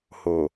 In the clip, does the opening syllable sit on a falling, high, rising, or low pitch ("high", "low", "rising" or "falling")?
low